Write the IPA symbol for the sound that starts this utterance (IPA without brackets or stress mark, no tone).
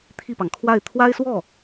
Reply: t̪ʰ